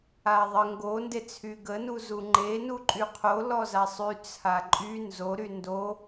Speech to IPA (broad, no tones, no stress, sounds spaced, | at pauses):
a ðˤ ə ŋ ɡ o n d e t͡sʰ y ɡ ə n u z u ŋ͡ǃ e n u ǃʼ y qʰ o l ɔ z a sˤ y t͡sʰ a ǃʼ y n z o ɾ y n d o